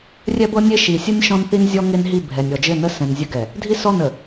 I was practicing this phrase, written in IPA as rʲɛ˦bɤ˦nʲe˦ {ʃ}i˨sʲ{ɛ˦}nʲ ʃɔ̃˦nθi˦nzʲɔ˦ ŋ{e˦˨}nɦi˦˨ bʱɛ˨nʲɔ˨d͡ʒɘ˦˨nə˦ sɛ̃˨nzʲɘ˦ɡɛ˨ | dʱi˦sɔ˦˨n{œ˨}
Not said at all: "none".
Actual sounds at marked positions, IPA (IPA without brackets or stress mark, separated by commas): ʃ, ə˦, e˦, ə˨